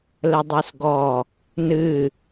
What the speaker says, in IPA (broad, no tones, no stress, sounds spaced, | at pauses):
l ə dˤ e s ɡ ɔ | n ɨ